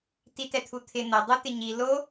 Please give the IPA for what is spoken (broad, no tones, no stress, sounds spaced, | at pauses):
t i t ɛ t̪ʰ u t̪ʰ ɪ n̪ ɐ dˤ u t̪ ɪ ɲ i l o